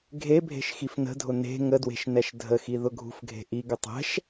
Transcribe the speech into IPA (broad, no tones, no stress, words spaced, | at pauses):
ɡʱebʱe̤ʃ xifnə̤dʱʊ ne̤ ŋədwe̤ʃ nɛʃdʱəxi ðʊɡʱṳfɡʱe̤ ʔiɡʊ tˤɛ̤ʃ